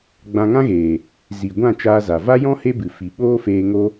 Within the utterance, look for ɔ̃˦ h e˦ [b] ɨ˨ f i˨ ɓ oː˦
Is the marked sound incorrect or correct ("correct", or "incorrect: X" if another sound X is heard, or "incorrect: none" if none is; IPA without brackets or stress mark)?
correct